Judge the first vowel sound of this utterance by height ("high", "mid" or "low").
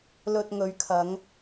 mid